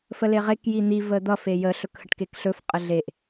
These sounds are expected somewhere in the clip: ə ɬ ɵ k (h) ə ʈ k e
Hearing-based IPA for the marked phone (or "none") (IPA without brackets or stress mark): h